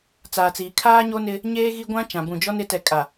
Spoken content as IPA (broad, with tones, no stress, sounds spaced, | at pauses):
t͡s aː˨ t͡s iː˨ kʰ aː˦ ɲ o˦ n ɪ˦ | ɲ eː˦ ɣ i˦ ɡʷ ã˦ t͡ʃ ã˨ b ũ˨ d͡ʒ ɔ˦ n ɪ˨˦ t ɛ˨ kʼ a˨